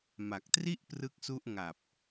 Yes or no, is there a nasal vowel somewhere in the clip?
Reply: no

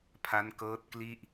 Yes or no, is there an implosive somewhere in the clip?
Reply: no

